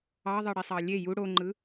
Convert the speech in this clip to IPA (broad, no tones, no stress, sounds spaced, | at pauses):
ɑ ðˤ ɯ ɽ i sˤ ɑ lʲ e j u ɽ o ŋ͡ǃ ɯ